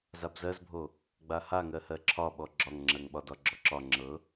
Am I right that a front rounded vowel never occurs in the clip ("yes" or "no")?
yes